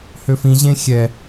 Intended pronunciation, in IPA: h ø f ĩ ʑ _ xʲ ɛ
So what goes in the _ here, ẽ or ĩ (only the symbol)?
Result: ẽ